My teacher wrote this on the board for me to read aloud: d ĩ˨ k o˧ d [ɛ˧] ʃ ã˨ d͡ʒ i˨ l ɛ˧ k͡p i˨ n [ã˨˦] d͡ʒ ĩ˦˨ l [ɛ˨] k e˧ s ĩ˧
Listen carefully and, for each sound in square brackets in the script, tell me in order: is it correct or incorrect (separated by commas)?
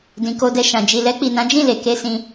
correct, correct, incorrect